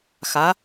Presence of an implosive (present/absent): absent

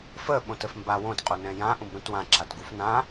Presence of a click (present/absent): present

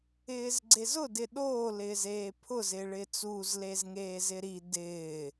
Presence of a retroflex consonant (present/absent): present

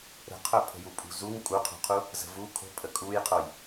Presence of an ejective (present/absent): present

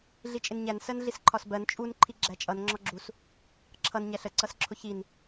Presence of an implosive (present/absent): absent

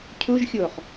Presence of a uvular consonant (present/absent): present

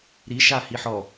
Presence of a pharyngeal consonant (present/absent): present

